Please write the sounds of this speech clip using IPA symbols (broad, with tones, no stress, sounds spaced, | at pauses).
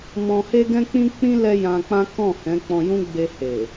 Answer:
m ɔ̃˧ h e˦ ɡ ɛ̃˦ k͡p ĩ˦ k͡p ĩ˦ l ɛ˦ j ã˧ k͡p ã˦ k ɔ̃˦˨ h ɛ̃˨˦ k͡p ɔ̃˧ j ũ˦ ɡ͡b e˧ h e˨